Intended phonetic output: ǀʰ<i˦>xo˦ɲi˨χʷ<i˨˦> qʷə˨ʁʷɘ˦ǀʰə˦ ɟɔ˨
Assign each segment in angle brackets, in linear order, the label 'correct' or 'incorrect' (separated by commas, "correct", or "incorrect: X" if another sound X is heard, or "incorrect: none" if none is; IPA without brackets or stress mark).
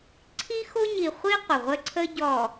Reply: correct, incorrect: i˦